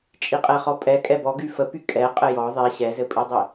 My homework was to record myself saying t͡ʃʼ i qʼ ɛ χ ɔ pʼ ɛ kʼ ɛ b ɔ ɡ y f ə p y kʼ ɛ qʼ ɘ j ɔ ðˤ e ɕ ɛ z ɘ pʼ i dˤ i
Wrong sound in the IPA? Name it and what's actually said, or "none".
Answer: none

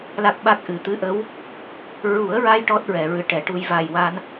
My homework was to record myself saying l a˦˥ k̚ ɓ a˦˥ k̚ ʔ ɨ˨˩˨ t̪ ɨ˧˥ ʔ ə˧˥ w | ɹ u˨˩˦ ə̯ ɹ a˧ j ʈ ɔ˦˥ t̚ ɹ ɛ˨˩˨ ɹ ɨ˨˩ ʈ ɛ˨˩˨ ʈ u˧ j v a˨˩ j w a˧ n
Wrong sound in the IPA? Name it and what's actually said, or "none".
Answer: none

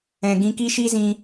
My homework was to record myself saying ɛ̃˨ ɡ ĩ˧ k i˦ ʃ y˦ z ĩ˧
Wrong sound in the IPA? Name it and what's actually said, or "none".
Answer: y˦ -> i˦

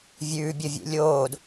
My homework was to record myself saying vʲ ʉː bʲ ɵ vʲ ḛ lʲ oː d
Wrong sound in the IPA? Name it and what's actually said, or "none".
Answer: none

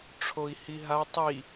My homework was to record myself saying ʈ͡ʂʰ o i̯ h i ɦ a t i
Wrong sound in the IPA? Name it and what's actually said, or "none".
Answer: t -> tˤ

